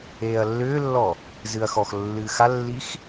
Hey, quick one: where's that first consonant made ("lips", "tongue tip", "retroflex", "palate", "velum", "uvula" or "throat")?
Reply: tongue tip